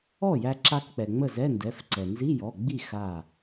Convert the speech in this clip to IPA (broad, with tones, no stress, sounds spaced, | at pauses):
ɔ˥˩ j æ˧ ǁ a˧ k k͡p ɛ˩ ŋ͡m ə˥˩ z ɛ˧˥˧ n d ɛ˩˧˩ f ǀ ɛ˩ n z i˧˥˧ j ɔ˩˧˩ ɡ͡b i˥˩ x a˧˩